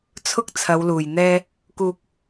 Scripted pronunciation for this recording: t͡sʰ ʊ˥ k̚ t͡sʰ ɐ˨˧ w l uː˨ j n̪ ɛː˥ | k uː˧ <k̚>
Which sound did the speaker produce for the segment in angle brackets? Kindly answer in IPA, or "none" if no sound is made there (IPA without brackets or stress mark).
k̚